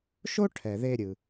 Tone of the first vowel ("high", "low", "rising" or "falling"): high